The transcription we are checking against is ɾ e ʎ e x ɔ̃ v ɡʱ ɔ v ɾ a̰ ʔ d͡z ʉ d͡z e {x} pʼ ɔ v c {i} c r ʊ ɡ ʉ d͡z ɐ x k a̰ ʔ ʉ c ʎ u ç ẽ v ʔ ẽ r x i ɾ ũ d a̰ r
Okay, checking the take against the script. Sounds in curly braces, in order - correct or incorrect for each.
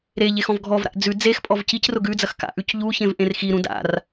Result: correct, correct

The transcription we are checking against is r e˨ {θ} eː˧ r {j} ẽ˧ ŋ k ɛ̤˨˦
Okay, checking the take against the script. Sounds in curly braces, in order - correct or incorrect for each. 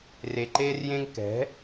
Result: incorrect, correct

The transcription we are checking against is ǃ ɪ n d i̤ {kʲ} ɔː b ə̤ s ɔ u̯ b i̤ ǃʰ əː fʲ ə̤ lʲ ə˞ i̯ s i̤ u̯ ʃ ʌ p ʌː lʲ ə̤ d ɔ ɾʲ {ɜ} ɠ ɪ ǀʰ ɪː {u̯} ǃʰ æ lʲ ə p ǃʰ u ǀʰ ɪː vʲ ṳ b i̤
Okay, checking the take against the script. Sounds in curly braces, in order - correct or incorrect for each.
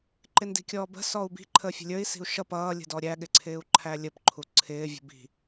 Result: correct, incorrect, correct

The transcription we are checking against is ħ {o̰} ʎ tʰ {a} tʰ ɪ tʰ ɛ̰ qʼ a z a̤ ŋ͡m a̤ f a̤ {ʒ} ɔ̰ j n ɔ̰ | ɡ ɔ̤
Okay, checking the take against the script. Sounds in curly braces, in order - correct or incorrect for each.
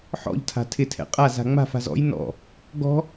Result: incorrect, incorrect, incorrect

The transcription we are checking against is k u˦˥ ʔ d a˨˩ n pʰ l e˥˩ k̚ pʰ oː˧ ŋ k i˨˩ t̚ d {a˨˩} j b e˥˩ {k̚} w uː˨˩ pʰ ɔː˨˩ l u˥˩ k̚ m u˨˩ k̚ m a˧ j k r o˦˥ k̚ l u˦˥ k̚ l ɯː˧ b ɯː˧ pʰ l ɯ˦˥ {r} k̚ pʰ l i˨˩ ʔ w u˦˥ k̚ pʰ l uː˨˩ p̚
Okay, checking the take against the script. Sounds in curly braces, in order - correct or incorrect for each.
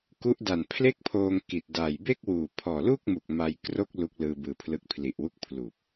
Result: correct, correct, incorrect

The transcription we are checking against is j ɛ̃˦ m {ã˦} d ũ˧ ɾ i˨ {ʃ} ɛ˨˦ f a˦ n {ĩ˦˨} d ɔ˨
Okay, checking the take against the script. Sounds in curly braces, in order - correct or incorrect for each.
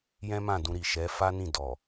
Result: incorrect, correct, correct

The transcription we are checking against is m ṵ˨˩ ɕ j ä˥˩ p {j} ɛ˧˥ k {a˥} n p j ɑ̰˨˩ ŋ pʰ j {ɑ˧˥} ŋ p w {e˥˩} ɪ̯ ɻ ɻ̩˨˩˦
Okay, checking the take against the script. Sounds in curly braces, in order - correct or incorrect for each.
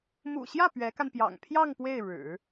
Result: incorrect, incorrect, incorrect, correct

